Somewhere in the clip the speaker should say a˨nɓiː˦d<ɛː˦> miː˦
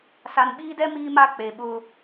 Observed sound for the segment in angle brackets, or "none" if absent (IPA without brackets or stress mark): ɛ˦